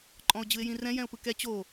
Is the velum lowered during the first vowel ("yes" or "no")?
yes